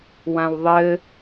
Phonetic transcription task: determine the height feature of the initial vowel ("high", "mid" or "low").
low